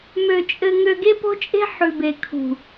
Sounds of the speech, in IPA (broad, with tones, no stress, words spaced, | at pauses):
mø˧t͡ʃʼɘ˧ ŋø˧ɡe˦po̤˦t͡ʃʼe̤˦ ħʉ˨be˨kʰṳ˨